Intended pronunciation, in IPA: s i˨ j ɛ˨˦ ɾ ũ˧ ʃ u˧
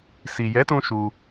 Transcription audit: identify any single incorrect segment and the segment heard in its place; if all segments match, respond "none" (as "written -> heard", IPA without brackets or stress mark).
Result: ɾ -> t